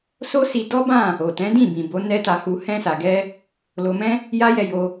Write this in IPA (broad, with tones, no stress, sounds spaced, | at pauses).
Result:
s o˦ s i˧ d ɔ˦ b ã˦˨ | o˨ t ɛ̃˨˦ d ĩ˦˨ b ĩ˨ b o˨˦ n ɛ˦ t a˧ h u˧ h ɛ̃˧ s a˨ ɡ ɛ˧ | l o˧ m ɛ̃˦ | j a˦ j ɛ˧ j o˧